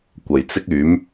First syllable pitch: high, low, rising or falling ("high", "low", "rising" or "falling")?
low